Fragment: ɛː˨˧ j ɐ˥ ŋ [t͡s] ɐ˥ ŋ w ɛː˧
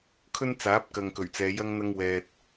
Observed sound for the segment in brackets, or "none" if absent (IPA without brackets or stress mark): n̪